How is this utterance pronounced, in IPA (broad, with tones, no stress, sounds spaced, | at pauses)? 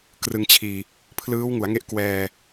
k r ɯ˧ ŋ t͡ɕʰ iː˧ | pʰ l ɯː˦˥ w ŋ u˩˦ a̯ ŋ e˥˩ ʔ k w ɛː˧